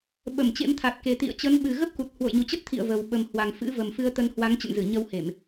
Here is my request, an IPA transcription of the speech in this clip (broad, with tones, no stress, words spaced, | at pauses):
ɓə˧˩mt͡ɕḛ˧˥mt̪ʰa˨˩t̚ke˨˩ t̪ḭ˧˨ə̯t͡ɕə˨˦n ɓɨ˨˩ɣə˦˥p̚ku˨˩t̚ hwo̰˧˨jɲu˨˩t͡ɕə˦˥t̚t̪ʰḭ˧˨ə̯ və˨˩w ɓə˨˩mhwa˨˩ŋfɨ̰˧˥ və˨˩mfɨ˧ə̯ t̪ə˧nhwa˨˦ŋ t͡ɕə̰˧˨nzɨ˧˩ ɲə˧whe˧˩˨m